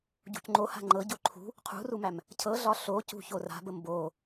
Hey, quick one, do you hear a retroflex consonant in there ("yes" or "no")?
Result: no